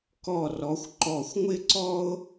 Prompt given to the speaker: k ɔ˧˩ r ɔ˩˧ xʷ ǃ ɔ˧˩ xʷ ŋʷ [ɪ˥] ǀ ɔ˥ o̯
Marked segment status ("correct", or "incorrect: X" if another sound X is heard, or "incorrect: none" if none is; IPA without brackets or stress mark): correct